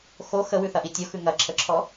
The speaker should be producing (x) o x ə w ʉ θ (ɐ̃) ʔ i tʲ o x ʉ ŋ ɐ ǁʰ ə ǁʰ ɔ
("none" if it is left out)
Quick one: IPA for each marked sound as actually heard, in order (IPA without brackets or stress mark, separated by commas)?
x, ɐ